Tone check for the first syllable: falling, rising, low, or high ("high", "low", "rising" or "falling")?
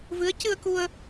rising